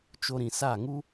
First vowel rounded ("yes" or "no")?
yes